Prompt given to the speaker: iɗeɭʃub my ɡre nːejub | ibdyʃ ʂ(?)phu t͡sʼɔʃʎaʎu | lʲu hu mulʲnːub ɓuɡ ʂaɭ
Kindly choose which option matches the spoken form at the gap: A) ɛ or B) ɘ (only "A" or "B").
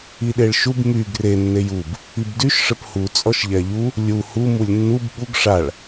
B